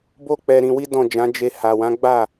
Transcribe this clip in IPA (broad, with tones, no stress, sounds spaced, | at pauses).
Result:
b o˧ k͡p ɛ˧ ɾ ĩ˧ w i˦ d ɔ̃˦˨ d͡ʒ ã˨˦ d͡ʒ e˧ h a˨ w ã˨˦ ɡ͡b a˦˨